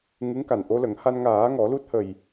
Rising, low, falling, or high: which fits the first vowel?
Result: rising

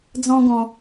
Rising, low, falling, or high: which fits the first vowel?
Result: high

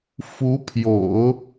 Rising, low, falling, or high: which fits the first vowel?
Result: rising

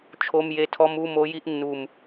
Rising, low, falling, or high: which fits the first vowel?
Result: high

